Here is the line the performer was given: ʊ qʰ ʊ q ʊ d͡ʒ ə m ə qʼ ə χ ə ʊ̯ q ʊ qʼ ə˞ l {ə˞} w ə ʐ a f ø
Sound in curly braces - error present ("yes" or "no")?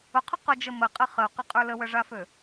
yes